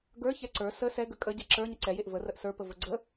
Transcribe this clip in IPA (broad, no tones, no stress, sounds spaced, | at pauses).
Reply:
ɡ ə˞ ç ɛ ǀ ə˞ s ə s ɛ ɡ ə kʼ ə ɟ ɛ ǁ ə˞ ɲ ə ǀ ɛ j e ʔ v ə r ə ʔ s ə˞ p ə v ə ɡ͡ǀ ə